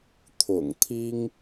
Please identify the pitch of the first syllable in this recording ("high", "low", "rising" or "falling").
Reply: low